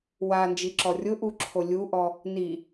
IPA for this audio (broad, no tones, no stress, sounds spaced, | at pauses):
w a n d͡ʒ i ǁ ɔ rʲ ʊ ʔ u ǁʰ o lʲ u ʔ ɔ | n i